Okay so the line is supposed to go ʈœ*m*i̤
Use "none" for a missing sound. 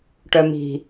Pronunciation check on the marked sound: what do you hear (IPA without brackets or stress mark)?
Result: m